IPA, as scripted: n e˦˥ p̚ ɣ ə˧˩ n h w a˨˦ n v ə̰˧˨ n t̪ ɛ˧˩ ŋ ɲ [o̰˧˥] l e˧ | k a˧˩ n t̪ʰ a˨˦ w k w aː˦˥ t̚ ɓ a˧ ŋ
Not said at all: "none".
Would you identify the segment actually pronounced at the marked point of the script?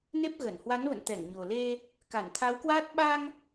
o˨˩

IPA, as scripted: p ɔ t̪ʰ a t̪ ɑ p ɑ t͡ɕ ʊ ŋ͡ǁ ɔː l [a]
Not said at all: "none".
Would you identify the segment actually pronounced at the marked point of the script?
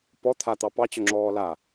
a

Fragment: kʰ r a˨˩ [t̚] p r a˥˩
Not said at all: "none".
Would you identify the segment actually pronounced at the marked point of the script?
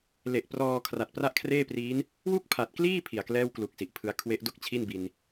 t̚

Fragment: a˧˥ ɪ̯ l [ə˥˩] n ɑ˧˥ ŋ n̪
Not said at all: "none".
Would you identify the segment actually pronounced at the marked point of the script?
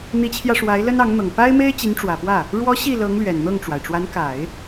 ə˥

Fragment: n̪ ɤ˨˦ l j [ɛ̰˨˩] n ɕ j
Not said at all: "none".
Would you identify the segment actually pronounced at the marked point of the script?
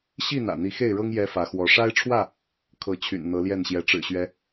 ɛ˥˨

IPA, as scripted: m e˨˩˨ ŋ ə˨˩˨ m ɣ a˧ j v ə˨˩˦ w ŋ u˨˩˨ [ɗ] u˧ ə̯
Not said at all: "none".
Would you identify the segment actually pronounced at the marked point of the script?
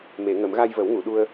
ɗ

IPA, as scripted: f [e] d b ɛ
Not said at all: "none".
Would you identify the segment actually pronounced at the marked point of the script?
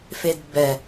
e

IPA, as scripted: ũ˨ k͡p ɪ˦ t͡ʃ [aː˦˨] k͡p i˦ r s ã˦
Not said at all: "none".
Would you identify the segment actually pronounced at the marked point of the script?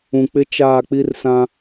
aː˦˨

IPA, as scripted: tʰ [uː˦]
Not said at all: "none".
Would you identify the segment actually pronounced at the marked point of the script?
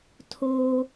oː˦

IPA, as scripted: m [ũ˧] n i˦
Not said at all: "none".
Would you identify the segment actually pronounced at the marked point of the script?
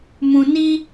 ũ˧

